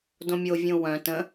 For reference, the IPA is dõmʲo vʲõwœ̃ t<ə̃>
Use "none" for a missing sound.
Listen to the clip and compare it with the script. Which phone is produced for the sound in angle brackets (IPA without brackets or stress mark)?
ə̃